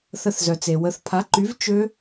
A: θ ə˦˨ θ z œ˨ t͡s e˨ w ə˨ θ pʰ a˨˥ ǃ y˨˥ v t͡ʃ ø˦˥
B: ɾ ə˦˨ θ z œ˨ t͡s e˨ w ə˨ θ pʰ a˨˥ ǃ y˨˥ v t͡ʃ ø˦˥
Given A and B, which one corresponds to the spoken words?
A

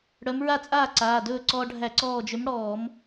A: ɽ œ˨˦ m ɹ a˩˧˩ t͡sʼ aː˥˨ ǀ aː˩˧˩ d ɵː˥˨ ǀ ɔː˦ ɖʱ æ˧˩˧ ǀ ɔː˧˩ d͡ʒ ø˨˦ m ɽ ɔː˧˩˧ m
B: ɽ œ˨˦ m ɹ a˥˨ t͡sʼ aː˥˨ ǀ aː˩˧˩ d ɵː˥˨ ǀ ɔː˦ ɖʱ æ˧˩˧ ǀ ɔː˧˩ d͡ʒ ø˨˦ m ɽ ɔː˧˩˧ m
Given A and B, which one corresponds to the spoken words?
B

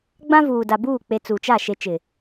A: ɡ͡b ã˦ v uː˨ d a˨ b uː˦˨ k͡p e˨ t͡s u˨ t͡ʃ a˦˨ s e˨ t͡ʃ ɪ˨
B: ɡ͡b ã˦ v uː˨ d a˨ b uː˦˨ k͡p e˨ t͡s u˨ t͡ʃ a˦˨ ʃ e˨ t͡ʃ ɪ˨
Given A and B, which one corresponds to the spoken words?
B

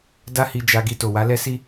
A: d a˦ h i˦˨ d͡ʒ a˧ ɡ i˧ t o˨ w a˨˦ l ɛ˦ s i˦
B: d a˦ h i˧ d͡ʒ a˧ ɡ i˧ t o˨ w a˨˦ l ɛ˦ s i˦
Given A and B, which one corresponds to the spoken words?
B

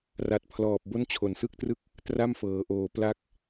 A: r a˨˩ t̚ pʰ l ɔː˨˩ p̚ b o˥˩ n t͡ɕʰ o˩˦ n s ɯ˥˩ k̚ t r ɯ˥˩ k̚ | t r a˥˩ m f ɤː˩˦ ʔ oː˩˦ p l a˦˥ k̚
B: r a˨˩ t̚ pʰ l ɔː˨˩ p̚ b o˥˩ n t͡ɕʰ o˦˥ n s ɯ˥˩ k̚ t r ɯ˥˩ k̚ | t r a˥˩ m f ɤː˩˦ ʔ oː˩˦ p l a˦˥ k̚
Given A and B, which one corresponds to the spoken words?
A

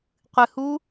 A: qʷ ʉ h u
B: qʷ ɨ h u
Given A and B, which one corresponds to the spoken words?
B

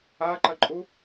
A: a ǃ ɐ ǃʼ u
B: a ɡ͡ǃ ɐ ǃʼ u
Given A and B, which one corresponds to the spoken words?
A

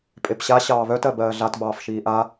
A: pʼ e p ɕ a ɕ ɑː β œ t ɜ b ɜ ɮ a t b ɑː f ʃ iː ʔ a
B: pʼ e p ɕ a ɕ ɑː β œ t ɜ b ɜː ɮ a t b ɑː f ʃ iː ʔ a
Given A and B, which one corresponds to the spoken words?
B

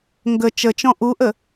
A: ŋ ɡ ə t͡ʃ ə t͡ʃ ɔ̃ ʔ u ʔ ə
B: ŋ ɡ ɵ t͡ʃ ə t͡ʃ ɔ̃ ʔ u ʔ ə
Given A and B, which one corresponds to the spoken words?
A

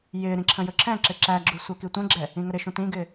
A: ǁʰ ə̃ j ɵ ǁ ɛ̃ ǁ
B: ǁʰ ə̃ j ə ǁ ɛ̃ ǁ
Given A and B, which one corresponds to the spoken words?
A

